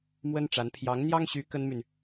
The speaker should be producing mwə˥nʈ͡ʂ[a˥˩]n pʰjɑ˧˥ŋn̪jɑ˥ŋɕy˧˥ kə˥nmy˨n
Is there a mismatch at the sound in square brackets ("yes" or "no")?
yes